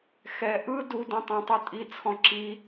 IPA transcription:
xɛ ʔɯ dudĩ tˤõtˤotʼit͡sʰɔ̃ ǁi

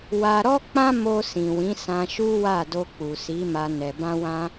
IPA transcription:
wa˧ɾɔ˦ k͡pã˦mo˧ sĩ˨wĩ˨˦ sã˧ʃu˦ wa˦˨do˧ k͡pu˨si˨˦ma˧ nɛ˨ bã˧wã˧

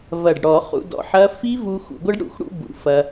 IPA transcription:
vɐ˨˩ɖɽɔ˧˩˧ χṵ˧dɔ̰˧ħɐ˦˥ fi˦˥vu˧ xṵ˧˩˧ɡʷɐ˦˥ɖɽṵ˨˩xɽṵ˥˧ bṵ˨˩fɐ˧

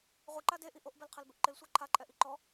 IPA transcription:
ʁʷiǃa deʔi ʔoʔbɛlqʰɛlbɪʔ ǃɪlsʷa ǃʰaǃʼɛʔi ǃɔ

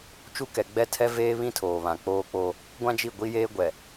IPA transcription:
t͡ʃu˦ kɛ˨ ɡ͡bɛ˦˨tʰɛ˦veː˦βĩ˦ tʰoː˨βã˨k͡poː˦k͡po˦ | ɡʷã˦d͡ʒi˦˨ɡʷi˦jeː˦ ɡʷɛ˨

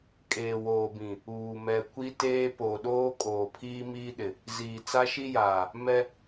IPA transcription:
kʼeː˨woː˨bĩ˨ | uː˨mɛ˨ kʷi˦teː˦ po˨ɗoː˦ kʼoː˨pʰiː˦miː˦ɗɪ˨ | ziː˨t͡sa˦ʃi˦jaː˨ | mɛ˦

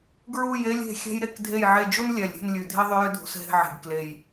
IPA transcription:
ɡɹu˦˨je˦lʲ e̤˦˨xʲɛ̤˦j ɾe˦˨kdʱe˦˨jʕe˦˨ d͡ʒu˦nlʲɛ˨˩lʲɾʲɛ̤˦˨nlʲʉ˨˩ dʱi˦ðˤʏ˦jʏ˦dʱṳ˨˩s ɦe̤˦˨ʕe̤˨˩ɡ kle˨˩j

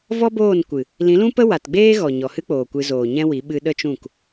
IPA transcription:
vɔ˦boː˦˨nkʷɨ˨ | lĩ˨˦lũ˦pə˦ wa˨tɡ͡beː˦ɣɔ˨ ɲɔ˨hɨ˦k͡poː˨ kʷɨ˧zoː˨ ɲɛ̃˦wi˨˦ ɓɨ˧ ɗə˦t͡ʃũ˦˨k

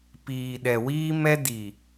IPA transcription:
piː˨ɗɛ˨wiː˦ mɛ˦ di˨

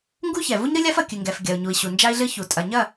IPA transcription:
ŋɡu˦çɛ˨ vu˦ɲɾɨ˦lʲa˦f ɐ˨kʲɨ˨ŋɡɛ˨f ɡʲɐ˨u̯ɲu˨i̯ɕu˨ nd͡ʒa˦i̯ɮɨ˦ çu˨ tʼɐ˨ɲɐ˦˨

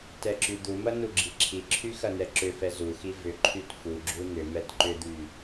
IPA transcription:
tɛǁyd̪umɐ nuɡ͡ǁiǁʰiǁʰy xɐnɛǁʏfɛ zuxi vʏǃʰyt fuɡ͡ǁu nʏ mɛtǃʏd̪y

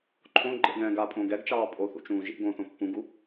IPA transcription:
ǃʰõ ɡ͡ǃḛɡɛ̃ː ɡapʼõːɡ ɛɡt͡ʃɑː pʼoθṵt͡ʃũː ʒḭ ɡõθõ pːũɡu

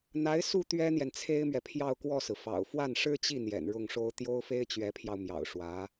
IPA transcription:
n̪a˧˥ɪ̯ su˥˩ t̪ɥɛ˥n̪jɛ˨nt͡sʰe˥ɪ̯mɥɛ˨ pʰjɑ˥˧ʊ̯kwɔ˥˩sɹ̩˩ fɑ̰˨˩ʊ̯fwa˥˩n ʂɻ̩˥t͡ɕi˥˩ n̪jɛ̰˨˩nɻʊ˥˩ŋʂo˥ʊ̯ t̪jo˥ʊ̯fe˥ɪ̯t͡ɕɥɛ˧˥pʰjɑ˧ʊ̯ mjɑ̰˨˩ʊ̯ʂwä˧˥

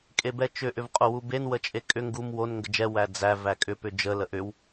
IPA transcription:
kʼebɛt͡ʃʏ ʔʏvqʼowuben wət͡ʃʼekʼʏ ŋɡum won ŋɡəd͡ʒɛ wæd͡zæ vækʼʏ pʏd͡ʒə ləʔʏw

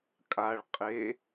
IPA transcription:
kʼaɭ qʼe

